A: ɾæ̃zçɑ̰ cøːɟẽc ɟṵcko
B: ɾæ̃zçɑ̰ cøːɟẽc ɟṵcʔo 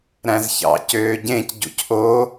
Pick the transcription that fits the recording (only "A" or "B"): B